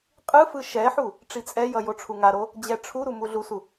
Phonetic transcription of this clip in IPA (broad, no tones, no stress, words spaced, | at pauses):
qʼɯfɯ ʃɛħu | ʈ͡ʂit͡sʼɛjʌ joʈ͡ʂʰuŋaɾo | d͡ʑɛʈ͡ʂʰuɾu muɮusu